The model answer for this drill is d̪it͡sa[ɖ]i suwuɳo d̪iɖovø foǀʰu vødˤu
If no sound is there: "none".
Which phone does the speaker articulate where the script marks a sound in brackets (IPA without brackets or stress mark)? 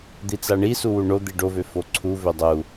ɳ